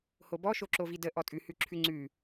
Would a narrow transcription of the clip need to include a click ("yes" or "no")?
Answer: yes